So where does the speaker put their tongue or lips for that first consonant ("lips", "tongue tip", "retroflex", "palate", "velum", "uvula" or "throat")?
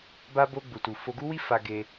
lips